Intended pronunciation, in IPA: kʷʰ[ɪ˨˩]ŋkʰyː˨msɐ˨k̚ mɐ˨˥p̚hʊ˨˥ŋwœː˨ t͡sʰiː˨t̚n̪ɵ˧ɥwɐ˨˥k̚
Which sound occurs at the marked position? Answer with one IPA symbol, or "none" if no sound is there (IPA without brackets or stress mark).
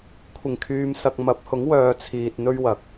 ɪ˨˩